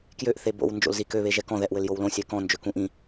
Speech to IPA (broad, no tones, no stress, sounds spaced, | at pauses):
k j ø ʔ θ e b o̰ w n d͡ʒ o̰ l z i k ø β e ʒ ɛ k ɔ̃ ð ɛ ʔ w ɘ l j o w l õ sʲ ɛ k ɔ̃ n d͡ʒ ø k ũ ʔ ĩ